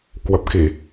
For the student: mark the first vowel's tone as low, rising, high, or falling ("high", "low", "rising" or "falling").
low